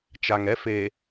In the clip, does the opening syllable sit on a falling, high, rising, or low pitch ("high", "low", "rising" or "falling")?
low